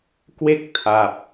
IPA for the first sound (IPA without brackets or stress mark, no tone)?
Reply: k